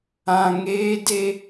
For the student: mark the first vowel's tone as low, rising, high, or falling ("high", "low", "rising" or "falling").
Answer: low